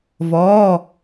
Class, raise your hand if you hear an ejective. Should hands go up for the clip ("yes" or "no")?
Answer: no